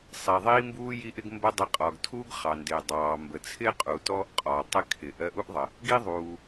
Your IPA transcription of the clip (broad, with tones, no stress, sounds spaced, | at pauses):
sˤ i˩ ðˤ iː˥ m b uː˥ j i˥ ʔ ɪ˥ ɡ m b ə˥ dˤ ɪ˧ qʼ ɒ˩ ɡ tʰ uː˥ ɡ χ ɑ˩ n d ɪː˩ dˤ ɑː˩ m b ə˩ t͡sʰ ɪː˥ qʼ u˩ t ɔ˥ ʔ qʼ ɒ˩ tˤ ɪ˧ kʰ ɪ˩ ʔ ɜ˧ ʔ u˥ ʔ ðˤ ə˩ | ɡ i˥ ðˤ uː˩